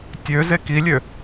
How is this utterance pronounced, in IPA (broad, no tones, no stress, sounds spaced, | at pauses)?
tʲ ø z e k i lʲ ø